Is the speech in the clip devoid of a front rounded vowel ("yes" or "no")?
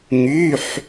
no